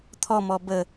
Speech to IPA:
t̪ʰ ɔ m ɔ b ə

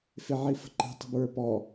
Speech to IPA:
f e ʕ i f ə̤ ǃ e̤ tˤ ə̤ b ɹ ə˞ p ɔ

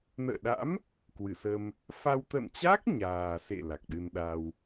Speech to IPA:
n ə̰ː˧˨ ɗ a̰˧˥ m | k w ɨ˧˩ s ə˧ m | f a˧ w t̪ ə̰˧˨ n t͡ɕ a˦˥ k̚ ɲ aː˨˩ s ḛ˧˨ l a˨˩ k̚ ɗ ɨ˧ n ɗ a˧ w

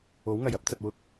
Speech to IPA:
o˨˥ w ŋ ɐ˨˩ j ɐ˥ p̚ t͡s ɐ˨ t̚ w ʊ˥ k̚

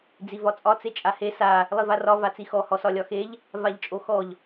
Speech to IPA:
d͡z i v ɒ t͡sʼ ɒ t͡s e t͡ʃʼ a h e s a | lˠ i v a r ɒ v a t͡s i x ɔ h ɔ s ɒ lʲ ɒ x e ʎ | v a ʎ t͡ʃʼ o x ɔ ʎ

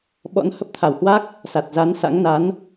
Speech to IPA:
ɓ ɔ̰˧˥ n h ə˦˥ p̚ t̪ʰ a˧˩ w h w a˦˥ k̚ | s a˨˩ t̚ z a˨˦ n s a̰˧˥ ŋ n a˨˦ n

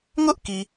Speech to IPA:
ŋ ʊ˦ ʔ k i˨

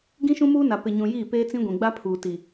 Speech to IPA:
ɡ ĩ˦ ʃ ũ˦ m uː˦ n a˨ p ɪ˨ ɲ ũ˨ j iː˦˨ p eː˦ t͡s ĩ˦ ɡʷ ĩ˨ ɡ͡b a˦ pʰ uː˨ t i˨

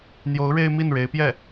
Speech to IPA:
n̪ j o˧˥ ʊ̯ ɻ e˥ ɪ̯ m i˥˩ n ɻ e˧˥ ɪ̯ p j ɛ˥˩

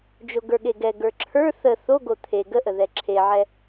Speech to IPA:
d͡ʒ o ɡ ə˞ ɠ e ɡ ɛ ɡ ə˞ ǁʰ ə˞ θ ə θ o ɡ o t̪ʰ e ɡ ə ʔ ə ð ɛ ǁʰ e ʕ ɛ

